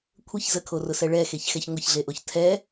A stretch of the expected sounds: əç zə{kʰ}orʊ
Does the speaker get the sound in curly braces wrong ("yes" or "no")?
no